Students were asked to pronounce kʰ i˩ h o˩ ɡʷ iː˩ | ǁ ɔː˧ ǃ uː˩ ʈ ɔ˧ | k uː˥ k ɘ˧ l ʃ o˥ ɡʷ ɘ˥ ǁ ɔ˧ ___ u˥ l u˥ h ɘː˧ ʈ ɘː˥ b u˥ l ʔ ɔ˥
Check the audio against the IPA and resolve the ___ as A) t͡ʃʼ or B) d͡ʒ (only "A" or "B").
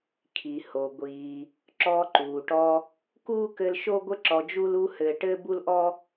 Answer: B